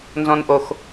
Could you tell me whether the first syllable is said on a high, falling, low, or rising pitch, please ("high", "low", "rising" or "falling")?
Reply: low